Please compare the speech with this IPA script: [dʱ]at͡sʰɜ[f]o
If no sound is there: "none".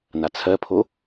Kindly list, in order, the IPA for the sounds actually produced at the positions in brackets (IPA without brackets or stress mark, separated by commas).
n, pʰ